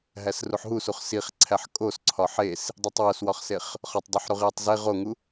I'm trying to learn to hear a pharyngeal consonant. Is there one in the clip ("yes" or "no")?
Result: yes